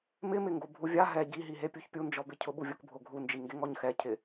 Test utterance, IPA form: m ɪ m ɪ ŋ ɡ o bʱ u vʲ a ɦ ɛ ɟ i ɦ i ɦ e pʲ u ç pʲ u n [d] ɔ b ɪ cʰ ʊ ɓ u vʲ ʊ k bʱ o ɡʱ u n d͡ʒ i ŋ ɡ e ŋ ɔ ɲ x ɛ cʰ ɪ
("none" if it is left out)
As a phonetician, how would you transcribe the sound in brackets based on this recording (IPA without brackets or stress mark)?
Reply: d͡ʒ